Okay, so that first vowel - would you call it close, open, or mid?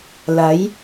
open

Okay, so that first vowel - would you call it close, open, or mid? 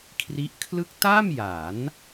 close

